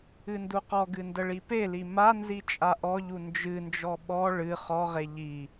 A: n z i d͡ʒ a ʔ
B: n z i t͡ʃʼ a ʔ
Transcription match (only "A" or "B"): B